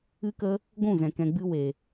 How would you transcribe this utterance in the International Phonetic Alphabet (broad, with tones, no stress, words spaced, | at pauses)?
ɨ˦kə˦ | ɡʷũ˦˨zɛ̃˨ kɛ̃˨ɡ͡bɨ˧ we˨